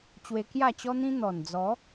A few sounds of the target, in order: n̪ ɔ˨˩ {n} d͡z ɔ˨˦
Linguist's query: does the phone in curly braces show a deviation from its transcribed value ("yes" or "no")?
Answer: no